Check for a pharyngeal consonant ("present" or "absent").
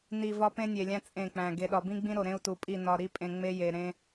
absent